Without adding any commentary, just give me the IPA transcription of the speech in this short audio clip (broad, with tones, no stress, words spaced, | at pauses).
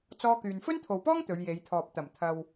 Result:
t͡sɔː˥kyː˧n fɵ˥nt̪ʰo˨wpɔː˥ŋ t̪ɵ˨˧ɥje˨˧jt̪ʰɔː˨p̚ t̪ɐ˨˩mt̪ʰɐ˨w